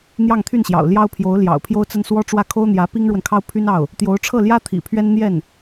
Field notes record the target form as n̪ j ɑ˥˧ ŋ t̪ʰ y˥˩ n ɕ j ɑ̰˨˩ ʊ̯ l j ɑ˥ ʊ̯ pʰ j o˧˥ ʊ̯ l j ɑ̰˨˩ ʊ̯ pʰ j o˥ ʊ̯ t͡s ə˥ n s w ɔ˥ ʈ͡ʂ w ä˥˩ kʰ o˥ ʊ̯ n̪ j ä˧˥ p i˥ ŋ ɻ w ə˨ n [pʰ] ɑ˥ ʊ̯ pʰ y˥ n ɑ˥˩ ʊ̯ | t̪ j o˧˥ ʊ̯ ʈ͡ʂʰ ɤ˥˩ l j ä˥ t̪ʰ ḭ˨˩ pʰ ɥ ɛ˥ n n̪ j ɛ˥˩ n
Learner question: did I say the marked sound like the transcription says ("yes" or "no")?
no